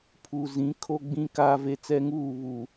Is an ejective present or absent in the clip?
absent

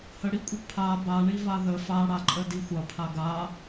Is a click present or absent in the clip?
present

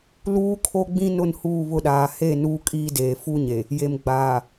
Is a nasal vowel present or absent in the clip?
present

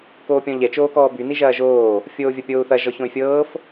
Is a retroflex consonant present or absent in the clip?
absent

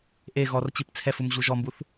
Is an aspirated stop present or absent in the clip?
present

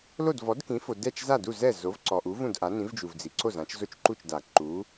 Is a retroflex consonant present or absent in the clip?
absent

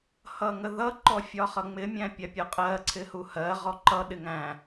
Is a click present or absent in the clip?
present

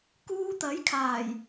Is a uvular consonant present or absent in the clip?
absent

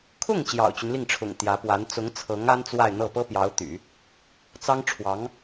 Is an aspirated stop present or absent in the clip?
present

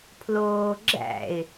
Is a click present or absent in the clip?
present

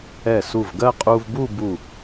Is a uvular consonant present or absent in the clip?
present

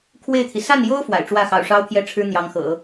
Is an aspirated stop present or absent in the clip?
present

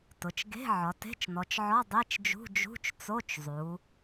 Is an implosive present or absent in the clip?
absent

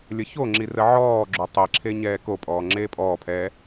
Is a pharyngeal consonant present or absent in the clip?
present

